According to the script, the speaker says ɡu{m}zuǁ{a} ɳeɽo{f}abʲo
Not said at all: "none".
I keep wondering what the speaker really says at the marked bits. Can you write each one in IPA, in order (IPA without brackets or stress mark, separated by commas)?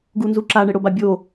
n, a, b